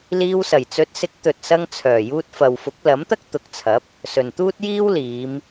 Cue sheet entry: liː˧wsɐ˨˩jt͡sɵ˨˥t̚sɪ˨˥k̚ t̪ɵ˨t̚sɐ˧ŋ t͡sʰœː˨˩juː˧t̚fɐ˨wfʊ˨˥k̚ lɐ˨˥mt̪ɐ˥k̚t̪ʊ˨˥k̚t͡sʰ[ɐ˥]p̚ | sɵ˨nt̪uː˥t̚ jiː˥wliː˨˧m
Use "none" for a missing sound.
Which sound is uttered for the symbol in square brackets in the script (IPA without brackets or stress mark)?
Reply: ɐ˨˥